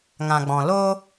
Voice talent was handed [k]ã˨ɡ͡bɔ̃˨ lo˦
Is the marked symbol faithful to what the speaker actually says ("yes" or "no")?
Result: no